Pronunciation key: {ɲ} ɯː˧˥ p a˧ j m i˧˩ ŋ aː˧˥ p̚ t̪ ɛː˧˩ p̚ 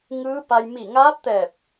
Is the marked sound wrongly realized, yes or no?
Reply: yes